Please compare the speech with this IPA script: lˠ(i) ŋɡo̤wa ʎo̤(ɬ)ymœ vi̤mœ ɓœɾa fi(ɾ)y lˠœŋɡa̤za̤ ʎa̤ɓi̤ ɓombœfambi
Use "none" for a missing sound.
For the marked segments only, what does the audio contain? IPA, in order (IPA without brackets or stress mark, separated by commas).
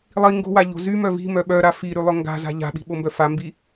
i, z, ɾ